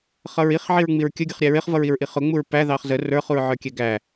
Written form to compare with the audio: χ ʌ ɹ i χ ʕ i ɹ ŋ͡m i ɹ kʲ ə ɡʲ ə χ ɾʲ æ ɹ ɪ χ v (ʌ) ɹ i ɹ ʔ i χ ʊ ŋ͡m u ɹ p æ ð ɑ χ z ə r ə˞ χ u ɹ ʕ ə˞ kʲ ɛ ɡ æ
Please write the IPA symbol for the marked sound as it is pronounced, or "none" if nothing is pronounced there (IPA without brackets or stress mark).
ʌ